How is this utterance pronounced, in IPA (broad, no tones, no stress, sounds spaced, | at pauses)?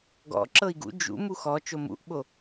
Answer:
ɡ ɔ̰ ǁ ɤ i̯ ɡ ṵ d͡ʒ ṵ m u x ɔ t͡ʃ o m ṵ ʔ ɓ o